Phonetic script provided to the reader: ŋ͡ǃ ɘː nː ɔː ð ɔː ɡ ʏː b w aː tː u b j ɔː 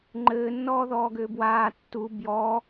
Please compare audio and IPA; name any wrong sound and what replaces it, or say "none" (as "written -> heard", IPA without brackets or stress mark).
none